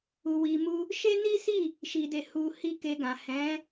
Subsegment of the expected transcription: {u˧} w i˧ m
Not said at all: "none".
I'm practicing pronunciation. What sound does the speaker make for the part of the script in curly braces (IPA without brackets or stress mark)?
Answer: u˧